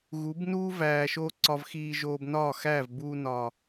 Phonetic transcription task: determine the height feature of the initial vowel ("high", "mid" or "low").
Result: high